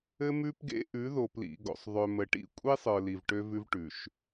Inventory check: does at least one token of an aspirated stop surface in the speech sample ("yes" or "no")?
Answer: no